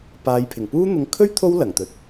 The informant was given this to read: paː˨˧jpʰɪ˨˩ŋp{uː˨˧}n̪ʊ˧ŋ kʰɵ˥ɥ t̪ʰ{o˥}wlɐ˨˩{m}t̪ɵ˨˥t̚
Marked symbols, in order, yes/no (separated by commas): no, yes, no